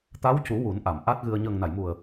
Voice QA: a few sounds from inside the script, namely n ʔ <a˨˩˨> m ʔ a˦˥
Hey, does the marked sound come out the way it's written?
yes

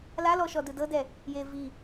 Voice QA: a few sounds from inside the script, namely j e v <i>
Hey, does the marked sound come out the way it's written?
yes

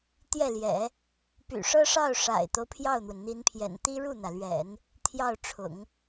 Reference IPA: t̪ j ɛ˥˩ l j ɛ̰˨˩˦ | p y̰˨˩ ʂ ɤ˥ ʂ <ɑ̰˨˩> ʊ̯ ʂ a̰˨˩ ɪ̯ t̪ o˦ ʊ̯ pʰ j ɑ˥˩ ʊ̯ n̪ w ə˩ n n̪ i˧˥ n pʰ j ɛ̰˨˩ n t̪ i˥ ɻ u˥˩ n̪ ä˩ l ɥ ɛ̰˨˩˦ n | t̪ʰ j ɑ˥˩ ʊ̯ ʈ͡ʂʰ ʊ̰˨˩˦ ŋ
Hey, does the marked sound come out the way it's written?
no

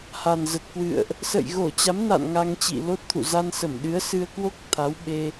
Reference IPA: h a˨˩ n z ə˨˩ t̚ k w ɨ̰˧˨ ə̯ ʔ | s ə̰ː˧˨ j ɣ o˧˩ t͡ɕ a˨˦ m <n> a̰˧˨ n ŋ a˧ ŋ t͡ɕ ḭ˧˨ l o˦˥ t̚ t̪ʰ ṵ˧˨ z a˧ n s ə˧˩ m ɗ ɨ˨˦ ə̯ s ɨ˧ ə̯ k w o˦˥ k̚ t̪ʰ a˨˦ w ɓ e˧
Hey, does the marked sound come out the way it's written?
yes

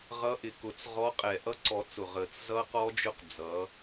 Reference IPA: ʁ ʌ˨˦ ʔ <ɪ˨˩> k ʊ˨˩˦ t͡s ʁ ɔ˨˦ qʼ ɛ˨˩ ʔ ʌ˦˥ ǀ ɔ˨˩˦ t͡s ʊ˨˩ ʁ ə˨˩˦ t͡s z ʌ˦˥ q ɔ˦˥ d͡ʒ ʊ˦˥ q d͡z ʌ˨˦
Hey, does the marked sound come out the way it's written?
yes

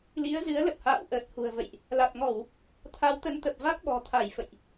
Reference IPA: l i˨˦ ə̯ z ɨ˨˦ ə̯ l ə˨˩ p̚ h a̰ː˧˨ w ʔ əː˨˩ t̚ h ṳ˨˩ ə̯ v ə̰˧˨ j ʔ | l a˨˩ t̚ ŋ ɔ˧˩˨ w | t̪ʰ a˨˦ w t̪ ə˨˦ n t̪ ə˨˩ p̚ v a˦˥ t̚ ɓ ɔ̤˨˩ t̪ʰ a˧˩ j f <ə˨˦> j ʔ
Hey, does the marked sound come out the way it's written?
no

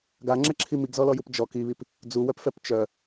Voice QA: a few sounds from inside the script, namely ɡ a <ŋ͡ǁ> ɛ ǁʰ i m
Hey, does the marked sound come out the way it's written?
yes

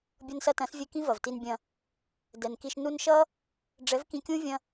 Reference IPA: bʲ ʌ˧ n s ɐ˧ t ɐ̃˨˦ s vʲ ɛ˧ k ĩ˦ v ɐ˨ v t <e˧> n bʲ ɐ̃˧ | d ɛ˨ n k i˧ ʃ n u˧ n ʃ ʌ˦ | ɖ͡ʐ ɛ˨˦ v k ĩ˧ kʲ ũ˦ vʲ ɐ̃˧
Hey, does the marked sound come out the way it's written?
no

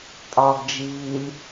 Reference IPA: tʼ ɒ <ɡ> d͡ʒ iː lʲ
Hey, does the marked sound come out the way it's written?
yes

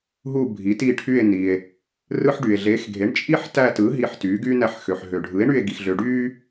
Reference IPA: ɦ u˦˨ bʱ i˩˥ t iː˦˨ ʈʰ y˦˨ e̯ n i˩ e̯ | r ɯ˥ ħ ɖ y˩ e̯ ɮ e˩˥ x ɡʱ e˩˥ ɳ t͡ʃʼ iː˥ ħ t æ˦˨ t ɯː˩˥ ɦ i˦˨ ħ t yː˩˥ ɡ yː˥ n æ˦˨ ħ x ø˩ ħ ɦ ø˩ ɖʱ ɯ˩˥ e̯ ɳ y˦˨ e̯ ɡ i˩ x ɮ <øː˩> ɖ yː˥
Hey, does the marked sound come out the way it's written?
no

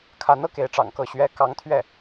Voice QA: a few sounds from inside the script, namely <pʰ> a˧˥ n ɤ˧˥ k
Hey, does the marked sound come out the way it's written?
no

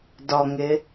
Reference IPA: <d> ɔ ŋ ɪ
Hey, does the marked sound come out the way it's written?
yes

